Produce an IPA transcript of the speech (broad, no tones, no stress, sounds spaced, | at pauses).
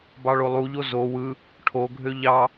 b ɑ ɭ o lˠ u ʎ o z o w ɯ | ʈʰ o ɡʱ ø ʎ ɑ